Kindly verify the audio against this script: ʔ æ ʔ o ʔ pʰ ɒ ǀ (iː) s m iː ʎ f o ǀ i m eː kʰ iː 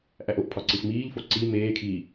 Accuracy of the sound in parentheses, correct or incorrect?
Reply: incorrect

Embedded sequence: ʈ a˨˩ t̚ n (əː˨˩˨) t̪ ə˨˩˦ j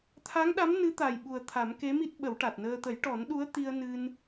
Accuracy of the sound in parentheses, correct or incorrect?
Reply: incorrect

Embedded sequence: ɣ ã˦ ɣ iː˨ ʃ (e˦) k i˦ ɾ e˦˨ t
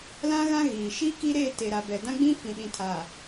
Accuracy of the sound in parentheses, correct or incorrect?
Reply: incorrect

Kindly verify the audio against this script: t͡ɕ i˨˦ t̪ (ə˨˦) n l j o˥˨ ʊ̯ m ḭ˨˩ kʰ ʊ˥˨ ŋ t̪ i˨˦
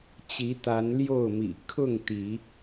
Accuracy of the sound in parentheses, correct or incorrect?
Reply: incorrect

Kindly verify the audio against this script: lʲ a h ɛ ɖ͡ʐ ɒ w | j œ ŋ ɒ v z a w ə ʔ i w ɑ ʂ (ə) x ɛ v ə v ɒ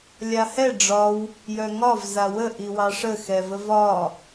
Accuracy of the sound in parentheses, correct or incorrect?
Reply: correct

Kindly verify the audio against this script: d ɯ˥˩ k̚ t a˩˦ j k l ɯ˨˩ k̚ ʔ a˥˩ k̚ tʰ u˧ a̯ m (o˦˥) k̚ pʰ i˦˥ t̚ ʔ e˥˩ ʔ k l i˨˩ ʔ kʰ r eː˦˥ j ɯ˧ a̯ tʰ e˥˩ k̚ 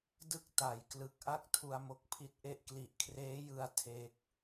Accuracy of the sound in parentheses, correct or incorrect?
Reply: correct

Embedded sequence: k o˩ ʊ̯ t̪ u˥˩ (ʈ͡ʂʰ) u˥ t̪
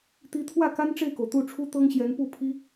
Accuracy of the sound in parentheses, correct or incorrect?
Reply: correct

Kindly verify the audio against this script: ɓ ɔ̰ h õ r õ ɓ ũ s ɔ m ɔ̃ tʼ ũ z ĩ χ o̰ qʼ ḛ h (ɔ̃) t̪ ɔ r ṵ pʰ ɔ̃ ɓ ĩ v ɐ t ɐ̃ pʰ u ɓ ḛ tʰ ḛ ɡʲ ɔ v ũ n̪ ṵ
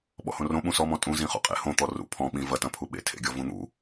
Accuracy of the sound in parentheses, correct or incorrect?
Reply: incorrect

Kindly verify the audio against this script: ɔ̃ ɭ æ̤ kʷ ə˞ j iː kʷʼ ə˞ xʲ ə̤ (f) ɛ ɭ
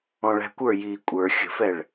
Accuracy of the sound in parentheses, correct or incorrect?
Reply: correct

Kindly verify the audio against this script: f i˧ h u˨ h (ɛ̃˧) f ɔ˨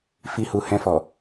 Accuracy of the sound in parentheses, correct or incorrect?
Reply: correct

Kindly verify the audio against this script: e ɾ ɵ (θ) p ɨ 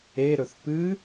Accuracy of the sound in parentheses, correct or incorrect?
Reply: correct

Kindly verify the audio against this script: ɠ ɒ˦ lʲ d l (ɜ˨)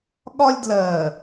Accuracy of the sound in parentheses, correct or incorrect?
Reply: correct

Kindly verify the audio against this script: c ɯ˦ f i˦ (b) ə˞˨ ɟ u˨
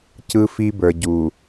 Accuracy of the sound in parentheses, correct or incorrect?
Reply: correct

